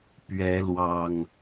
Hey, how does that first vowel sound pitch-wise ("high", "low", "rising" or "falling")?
rising